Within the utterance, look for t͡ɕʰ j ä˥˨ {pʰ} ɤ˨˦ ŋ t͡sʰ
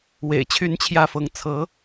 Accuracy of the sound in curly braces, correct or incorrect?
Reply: incorrect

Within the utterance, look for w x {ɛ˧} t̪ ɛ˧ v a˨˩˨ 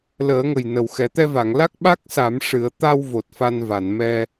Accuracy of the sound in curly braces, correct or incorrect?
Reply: incorrect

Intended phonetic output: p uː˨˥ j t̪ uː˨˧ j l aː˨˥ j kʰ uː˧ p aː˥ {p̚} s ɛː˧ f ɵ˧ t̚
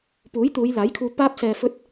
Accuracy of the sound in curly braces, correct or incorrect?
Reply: correct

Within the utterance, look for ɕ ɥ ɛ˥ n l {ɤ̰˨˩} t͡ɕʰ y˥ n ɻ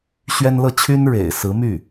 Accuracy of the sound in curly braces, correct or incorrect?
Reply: incorrect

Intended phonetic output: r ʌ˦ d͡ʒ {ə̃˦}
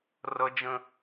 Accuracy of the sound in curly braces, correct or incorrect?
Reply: correct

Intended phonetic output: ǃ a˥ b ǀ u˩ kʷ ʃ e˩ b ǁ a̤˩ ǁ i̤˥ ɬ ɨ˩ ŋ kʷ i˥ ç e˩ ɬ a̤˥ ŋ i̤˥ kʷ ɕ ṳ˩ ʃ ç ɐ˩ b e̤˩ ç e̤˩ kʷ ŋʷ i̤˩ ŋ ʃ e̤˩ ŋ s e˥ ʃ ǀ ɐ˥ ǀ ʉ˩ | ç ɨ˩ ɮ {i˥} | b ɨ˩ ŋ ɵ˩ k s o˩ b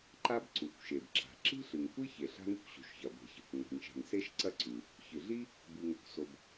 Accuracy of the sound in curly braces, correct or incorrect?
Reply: correct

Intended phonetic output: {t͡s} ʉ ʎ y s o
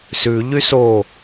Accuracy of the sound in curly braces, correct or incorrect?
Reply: incorrect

